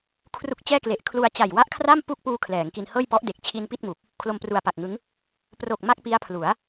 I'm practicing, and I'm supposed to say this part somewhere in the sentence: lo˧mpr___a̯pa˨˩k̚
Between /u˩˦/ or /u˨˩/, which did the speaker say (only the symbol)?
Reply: u˨˩